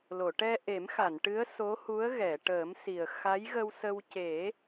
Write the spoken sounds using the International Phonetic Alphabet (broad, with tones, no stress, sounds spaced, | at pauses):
l o˨˩˨ ʈ ɛ˧ ʔ e˨˩˦ m x a˨˩˨ n ʈ ɨ˧˥ ə̯ s o˧˥ h u˧˥ ə̯ ɣ ɛ˨˩˨ ʈ əː˨˩˦ m s i˨˩ ə̯ x a˧˥ j ɣ ə˧ w s ə˧ w c e˨˩˦